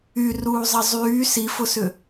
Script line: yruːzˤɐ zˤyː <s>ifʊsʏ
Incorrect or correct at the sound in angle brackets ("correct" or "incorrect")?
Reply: correct